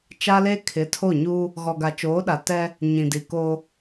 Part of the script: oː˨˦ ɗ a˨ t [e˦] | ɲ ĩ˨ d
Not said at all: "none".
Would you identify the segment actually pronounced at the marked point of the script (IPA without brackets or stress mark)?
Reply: ɛ˦